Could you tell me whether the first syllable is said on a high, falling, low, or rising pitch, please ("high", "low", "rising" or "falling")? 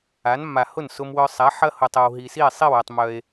rising